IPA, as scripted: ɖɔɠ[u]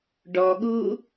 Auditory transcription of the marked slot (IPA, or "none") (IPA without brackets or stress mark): u